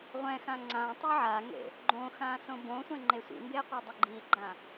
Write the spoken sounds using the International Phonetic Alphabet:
ʁʷ ɛ̃ x ã ŋ͡ǀ ã tˤ o ʕ a ŋ ḛ | ɡ͡ǃ õ x ã s õ b õ sʷ ẽ ŋ͡ǃ e sʷ ḭ m b e qʷ e dˤ ɪ ɡ͡ǃ i ɡ͡ǃ ã

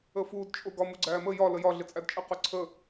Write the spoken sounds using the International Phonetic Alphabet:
ə f uː d t͡ʃʼ ʊ ɡ ɒ m u ɡ͡ǀ æː m ə j ɒ l ə j ɒ ɮ ɪ t͡sʼ æ d t͡ʃʼ ɪ q ʊ ǀʰ ə

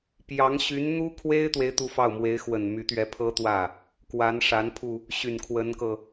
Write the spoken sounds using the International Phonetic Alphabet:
p j ɑ˧˥ ŋ ɕ y˧˥ n n̪ u˥ kʰ w e˥ ɪ̯ t̪ w e˥ ɪ̯ t̪ u˥˧ f ɑ˥˩ ʊ̯ m w e˧˥ ɪ̯ x w ə˨˩ n m y˧˥ t̪ ɥ ɛ˧˥ pʰ ɤ˥ t̪ w ä˥˩ | k w a˧˥ n ʂ a˧˥ n pʰ u˧ | ɕ y˨˩ n kʰ w ə˧˥ n k ɤ˧

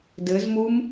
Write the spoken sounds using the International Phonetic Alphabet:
d ɘ z m u m

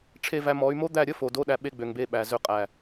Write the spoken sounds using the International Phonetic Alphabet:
ʈ͡ʂʰ e˧ v æ˧ m ɔ˨˦ y̯ m o˦ d̪ æ˦˨ ɾʲ ə˦ f o˨ d o˦ ɗ æ˧ ɓ e˧ ɡ͡b ø˨ ŋ b e˧ ɓ æ˨ z ø˧ qʼ æ˨

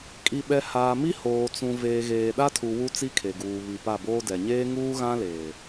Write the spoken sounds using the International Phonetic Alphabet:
kʼ i˨ ɓ ɛ˨ h aː˨ m i˦ h oː˨ t͡s ũ˨ v eː˨ ɣ eː˨ ɗ a˦ tʰ u˨ w u˦ t͡s i˦ kʰ e˨ ɡ uː˨ β i˨ p a˦˨ b oː˦ d ɛ˨ ɲ eː˦ ŋ uː˦ ɣ ã˦ l eː˨

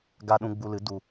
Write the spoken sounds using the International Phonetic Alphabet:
ɡ a˧ ɗ ũ˧ ɡ͡b u˧ l ɨ˨˦ d u˨

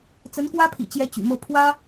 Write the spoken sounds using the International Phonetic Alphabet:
t͡s ə˧˥ n k w ä˥ pʰ ḭ˨˩ t͡ɕ j ɛ˧˥ t͡ɕ y̰˨˩ m ɤ˥˩ pʰ w ä˥

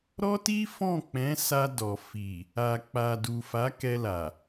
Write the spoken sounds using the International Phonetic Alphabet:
ɾ ɔ˦ t i˦ f ɔ̃˦˨ k͡p ɛ̃˨˦ s a˧ d ɔ˨ f i˨ | a˨ k͡p a˨ d u˨ f a˨˦ k ɛ˧ l a˨

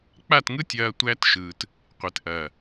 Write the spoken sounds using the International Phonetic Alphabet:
k͡p a˦˨ t ŋ ɯ˦ tʲ ɐː˦ tʷ æ˦ t ʃ ɯː˨ t | qʷ e˨ t ʔ ɐː˨

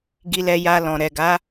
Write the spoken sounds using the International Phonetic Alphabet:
ɡ i˧ l ɛ˧ j a˧ l ɔ̃˨ ɾ ɛ˨ ɡ a˨˦

